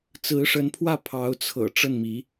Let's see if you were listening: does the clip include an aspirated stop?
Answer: yes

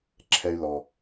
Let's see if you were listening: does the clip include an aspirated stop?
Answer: yes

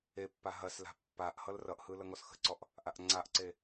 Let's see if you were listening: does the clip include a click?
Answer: yes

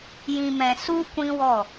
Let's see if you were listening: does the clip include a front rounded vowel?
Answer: no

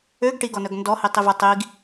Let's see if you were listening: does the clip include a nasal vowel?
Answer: no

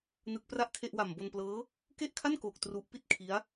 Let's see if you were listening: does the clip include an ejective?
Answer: no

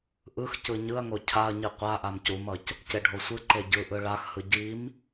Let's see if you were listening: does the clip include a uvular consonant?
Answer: yes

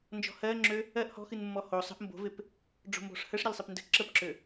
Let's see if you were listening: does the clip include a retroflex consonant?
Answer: yes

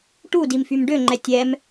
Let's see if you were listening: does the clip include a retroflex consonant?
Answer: yes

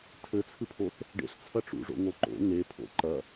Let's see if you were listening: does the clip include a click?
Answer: yes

